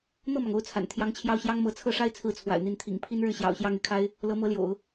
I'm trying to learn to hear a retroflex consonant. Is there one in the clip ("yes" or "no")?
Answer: yes